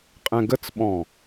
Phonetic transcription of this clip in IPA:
qʼ ɛ̃ ɡ ə t͡s ɓ ɔ̃

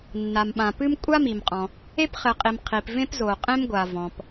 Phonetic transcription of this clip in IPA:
nː a˩ m ɓ ã˩ p ɨ˥ m kʷʼ a˥ m i˩ m qʼ ɔ̃˩ | e˥ p χ ɘ˩ qʼ i˩ m qʰ i˩ p v ẽ˥ p z o˩ qʼ ẽ˥ m ɡʷ a˩ v ɔ̃˩ p

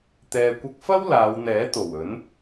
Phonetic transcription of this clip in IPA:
t̪ ɛː˨ kʷ ɐ˧ k̚ f ɐ˥ w l aː˨˧ w n̪ ɛː˨˥ t̪ o˨˩ w ɵ˨˥ n

